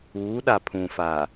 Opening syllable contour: rising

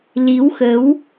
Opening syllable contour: rising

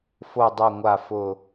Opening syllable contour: low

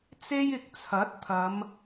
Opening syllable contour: high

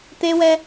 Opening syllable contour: high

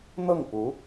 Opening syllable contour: falling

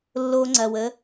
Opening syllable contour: low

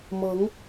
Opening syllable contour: rising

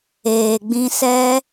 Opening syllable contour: low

